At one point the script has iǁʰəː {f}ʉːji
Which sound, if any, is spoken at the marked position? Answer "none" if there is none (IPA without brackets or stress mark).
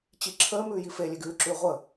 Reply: m